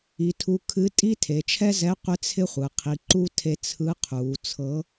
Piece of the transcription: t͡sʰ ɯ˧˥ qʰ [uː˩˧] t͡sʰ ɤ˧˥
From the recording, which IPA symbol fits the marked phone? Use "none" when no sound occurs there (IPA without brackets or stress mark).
uː˩˧